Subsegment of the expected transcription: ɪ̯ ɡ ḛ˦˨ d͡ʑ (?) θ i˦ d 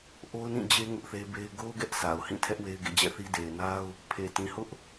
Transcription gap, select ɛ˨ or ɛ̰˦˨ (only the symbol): ɛ̰˦˨